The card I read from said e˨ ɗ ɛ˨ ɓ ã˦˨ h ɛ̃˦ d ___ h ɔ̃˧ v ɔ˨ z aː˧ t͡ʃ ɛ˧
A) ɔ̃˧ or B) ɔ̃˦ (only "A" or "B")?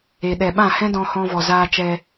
A